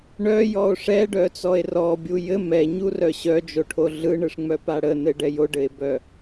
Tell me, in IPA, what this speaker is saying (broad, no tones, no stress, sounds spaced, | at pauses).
ɳ œ j ɔ o̯ ʂ ɛ ɖ œ t͡s ɔ e̯ r ɔ bʲ u j ɘ m ɛ ɲ u r œ ɕ œ d͡ʒ o ʈʰ o ɮ ɯ ɳ ɯ ʂ ŋ͡m œ p a ɽ ə n ɘ ɖ ɛ j o ɖ ɘ e̯ b œ